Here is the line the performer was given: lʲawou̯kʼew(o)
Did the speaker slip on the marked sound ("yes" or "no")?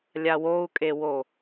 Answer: no